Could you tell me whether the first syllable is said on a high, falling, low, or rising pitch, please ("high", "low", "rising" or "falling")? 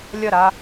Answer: falling